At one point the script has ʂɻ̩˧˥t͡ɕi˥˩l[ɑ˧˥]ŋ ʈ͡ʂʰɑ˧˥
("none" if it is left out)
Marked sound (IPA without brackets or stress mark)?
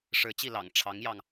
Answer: ɑ̰˨˩